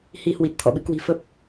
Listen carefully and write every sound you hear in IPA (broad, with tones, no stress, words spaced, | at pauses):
hi˧hwi˨˩t̚t̪ʰɔ̰˧˨ɓɨ˧ kwi̤˨˩fə˦˥p̚